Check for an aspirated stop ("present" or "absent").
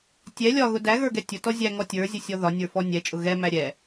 absent